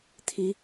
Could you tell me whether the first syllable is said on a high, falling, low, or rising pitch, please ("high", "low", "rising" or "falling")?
rising